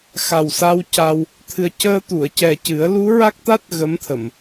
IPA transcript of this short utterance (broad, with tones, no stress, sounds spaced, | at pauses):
x a˨˩ w s a˧ w c a˧ w | t̪ʰ ɨ˨˩ ə̯ c əː˧ t̪ u˨˩˨ ə̯ c ɛ˨˩ c ɨ˨˩˦ ə̯ l u˧˥ ɹ a˦˥ k̚ t̪ a˦˥ t̚ ɣ ə˧˥ m t̪ʰ ə˨˩˨ m